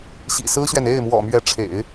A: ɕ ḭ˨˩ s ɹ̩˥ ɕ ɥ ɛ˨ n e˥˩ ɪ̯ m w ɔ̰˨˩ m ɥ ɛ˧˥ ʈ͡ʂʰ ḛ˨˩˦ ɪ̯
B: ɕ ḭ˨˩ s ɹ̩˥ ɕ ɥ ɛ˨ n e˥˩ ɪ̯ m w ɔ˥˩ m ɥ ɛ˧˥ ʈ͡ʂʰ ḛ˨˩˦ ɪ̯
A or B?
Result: A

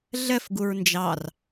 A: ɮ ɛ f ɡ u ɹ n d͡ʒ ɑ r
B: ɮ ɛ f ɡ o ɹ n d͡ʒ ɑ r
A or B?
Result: A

